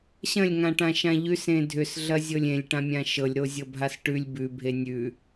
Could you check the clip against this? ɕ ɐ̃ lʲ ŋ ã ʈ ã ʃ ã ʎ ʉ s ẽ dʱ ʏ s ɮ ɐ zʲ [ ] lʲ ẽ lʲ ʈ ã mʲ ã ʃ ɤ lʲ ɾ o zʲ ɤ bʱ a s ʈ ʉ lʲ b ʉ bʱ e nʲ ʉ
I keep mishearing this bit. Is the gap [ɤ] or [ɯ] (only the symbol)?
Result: ɤ